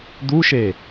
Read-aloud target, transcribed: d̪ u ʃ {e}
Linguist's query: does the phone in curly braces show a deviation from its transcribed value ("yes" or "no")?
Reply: no